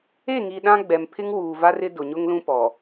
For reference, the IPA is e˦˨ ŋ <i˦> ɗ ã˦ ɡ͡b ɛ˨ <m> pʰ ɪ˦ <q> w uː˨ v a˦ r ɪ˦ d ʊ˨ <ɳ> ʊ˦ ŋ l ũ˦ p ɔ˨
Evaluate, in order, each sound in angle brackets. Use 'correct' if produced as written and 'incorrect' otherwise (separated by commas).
incorrect, correct, incorrect, incorrect